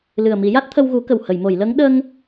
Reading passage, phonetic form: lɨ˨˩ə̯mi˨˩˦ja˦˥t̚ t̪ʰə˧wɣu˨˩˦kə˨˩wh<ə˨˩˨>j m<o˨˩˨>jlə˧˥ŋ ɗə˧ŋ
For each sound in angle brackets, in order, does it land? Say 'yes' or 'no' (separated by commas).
yes, yes